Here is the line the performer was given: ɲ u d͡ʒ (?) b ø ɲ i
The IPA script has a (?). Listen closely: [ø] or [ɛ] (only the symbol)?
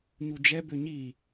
ɛ